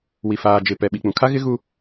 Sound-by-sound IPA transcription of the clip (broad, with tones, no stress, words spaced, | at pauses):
wi˨ faː˨d͡ʒɪ˨ pɛ˨ɓi˨k͡pũ˨kʰa˦ ɣɪ˦ɣu˦